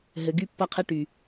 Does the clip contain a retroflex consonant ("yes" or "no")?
yes